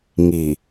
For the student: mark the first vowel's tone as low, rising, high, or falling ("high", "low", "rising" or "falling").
low